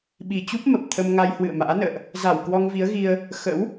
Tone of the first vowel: low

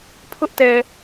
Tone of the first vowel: high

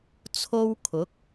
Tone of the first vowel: high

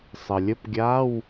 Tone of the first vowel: low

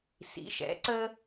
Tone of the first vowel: rising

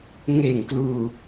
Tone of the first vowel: low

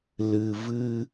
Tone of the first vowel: low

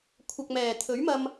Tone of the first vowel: low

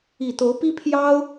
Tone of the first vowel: low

